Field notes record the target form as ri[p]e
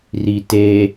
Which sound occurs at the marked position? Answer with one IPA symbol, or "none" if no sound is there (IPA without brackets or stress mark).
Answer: t